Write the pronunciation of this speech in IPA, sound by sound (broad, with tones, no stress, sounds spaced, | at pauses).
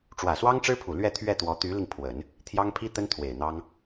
ʈ͡ʂ w ä˨˩ s w ɑ˥ ŋ ʈ͡ʂ ɻ̩˥ pʰ u˨˩ l ɥ ɛ˥˧ t̪ʰ ɥ ɛ˥˩ t̪ w ɔ˧˥ t̪ y˧˥ l i˧ ŋ pʰ w ə˨˩˦ n | t̪ʰ j ɑ˥ ŋ pʰ i˥ t̪ ə˥ n t̪ʰ w e˨˩ ɪ̯ n̪ ɑ˥ ŋ